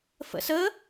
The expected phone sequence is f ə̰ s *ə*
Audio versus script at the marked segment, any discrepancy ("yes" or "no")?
no